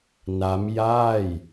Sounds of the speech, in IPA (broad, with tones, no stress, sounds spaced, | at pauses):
n a˦˥ m j aː˥˩ j